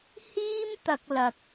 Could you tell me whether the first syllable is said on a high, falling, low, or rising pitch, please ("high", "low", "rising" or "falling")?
high